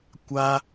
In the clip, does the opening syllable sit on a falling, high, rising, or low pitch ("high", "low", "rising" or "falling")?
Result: high